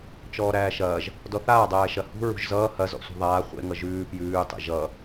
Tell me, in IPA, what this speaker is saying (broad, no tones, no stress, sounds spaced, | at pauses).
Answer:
t͡ʃ ɔː ɾ æː ʃ ɐː ʒ | d ɔ θ aː dˤ æː ʃ ɐ h ṳ ɹ ṳ ʒ z ʌː h ɐ z ɔ̰ sʷ e̤ ðˤ aː χʷ ḛ ŋ ʌ ʒ ʉː p j ʉː tˤ ḛ ʒ ʌ